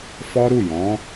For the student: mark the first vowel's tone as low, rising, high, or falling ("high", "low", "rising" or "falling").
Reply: high